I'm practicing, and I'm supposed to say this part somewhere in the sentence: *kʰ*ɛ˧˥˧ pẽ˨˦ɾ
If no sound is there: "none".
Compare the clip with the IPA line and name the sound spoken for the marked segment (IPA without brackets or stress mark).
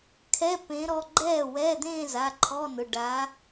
kʰ